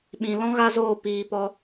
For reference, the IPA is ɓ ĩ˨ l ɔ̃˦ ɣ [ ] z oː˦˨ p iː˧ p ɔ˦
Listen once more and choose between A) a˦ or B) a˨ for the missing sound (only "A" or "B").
A